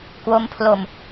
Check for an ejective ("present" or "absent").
absent